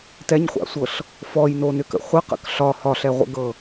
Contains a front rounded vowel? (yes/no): yes